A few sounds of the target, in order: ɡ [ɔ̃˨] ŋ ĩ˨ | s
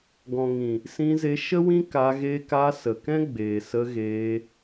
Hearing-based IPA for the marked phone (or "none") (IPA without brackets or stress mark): ɔ̃˨